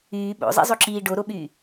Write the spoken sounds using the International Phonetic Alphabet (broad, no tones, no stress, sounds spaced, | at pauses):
yː ɓ o̰ zˤ ḭ zˤ o ǁ iː ɖ o ɾ o ɓ yː